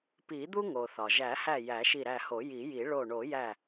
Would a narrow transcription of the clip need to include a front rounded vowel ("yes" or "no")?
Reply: no